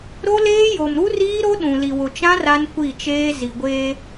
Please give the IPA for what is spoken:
ɾ o˦ l eː˦ j o˨ m ɾ u˦ r iː˦ ɾ o˦ ɗ ũ˨ l i˨ w ʊ˨ t͡ʃ ã˦ r a˦ n kʷ i˦˨ t͡ʃ eː˦ z i˨ ɡʷ eː˦

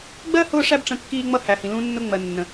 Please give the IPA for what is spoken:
ɡ͡b ɜ˦ h ʊː˦ ʂ æ˦ b ʈ͡ʂ ə̃˧ kː iː˧ ŋ͡m ʌ˧ h æ˨ h ĩ˨ l ũ˧ nː ʊ˧ ŋ͡m ɜ˨ nː ə̃˨

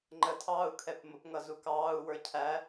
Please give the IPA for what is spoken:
ŋ͡ǃ ə tʰ ɑː u̯ kʰ ɛ p m ʊ p ŋ ʌ z u k ɑː u̯ w ə˞ cʰ æ

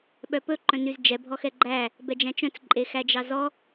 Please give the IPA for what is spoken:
ɓ œ p ɵ ǃ œ̃ n y z d͡ʒ ɛ bʱ ɔ x ɛ ɡ͡ǃ æ | b ɛ d͡ʒ æ̃ t͡ʃ œ̃ t͡s ǃʼ e x æ d͡ʒ ɑ z ɔ

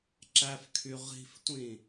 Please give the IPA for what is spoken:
ǁ æ f kʰ y ʁ i̤ f tʷ ĩ

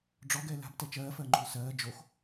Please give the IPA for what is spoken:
ɖ͡ʐ ɔ ɡ ɛ l a̤ b t ɛ t͡ʃ ɜː f ɜ ŋ͡ǃ o̤ l s ɜː d͡ʒ o x

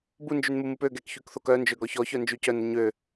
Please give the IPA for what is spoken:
b u n d͡ʒ y n m u m u p ø ɡ ɛ k ç y k θ o k œ n d͡ʒ ø ɡ ɔ ç ɔ ç œ n d͡ʒ y c œ n ə ɲ ø

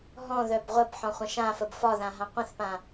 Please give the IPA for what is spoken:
ɦ ɔ̃ ð œ b ʁʷ ə b ħ ɔ̃ χʷ ə̃ ʃ ã f ə b f ɒ ð ã ɦ ã qʷ ə̃ θ p ã

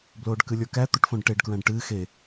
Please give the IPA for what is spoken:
b l oː ɖ k ɨ lʲ ə˞ k æ t̪ o ʈ f õ ɖ ʈ e ɖ k ɹ æ̃ ɖ ʈ ɨː x e

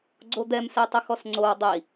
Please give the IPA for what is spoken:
ɡ͡ǀ o d̪ ɛ m s ɛ tˤ ʊ x ɔ s ŋ͡ǀ o w dˤ i

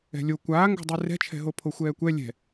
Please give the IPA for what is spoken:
ɛ̤ lʲ o kʷ aː ŋ ɡ o̤ dˤ ɯ r ɛ̤ t͡ʃʰ ɛ̤ ɦ o pʰ o xʷ ɛː kʷ ɛ lʲ ɛ̤

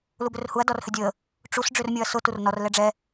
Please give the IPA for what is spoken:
l u b ʏ r h u ɐ̯ d ɔ r h ʏ dʲ ə | ʈ͡ʂ u s ɖ͡ʐ ʏ r mʲ o ɐ̯ s ʊ t u r n ɔ r l ɛ ɖ͡ʐ ɛ

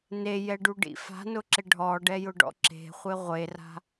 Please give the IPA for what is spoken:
n e j ɛ ɖ u ɖ ḭ f a̤ n ʊ ǁ ɪ ɖʱ ɔ ɖ ɛ j ʊ ɖ ɔ̰ ǁ e̤ χʷ ɪ ʁʷ e r a̤

